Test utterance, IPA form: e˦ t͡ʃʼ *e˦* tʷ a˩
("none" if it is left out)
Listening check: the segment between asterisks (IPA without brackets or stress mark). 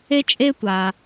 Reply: e˦